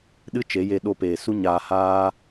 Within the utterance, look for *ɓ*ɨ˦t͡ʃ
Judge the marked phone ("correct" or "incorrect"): incorrect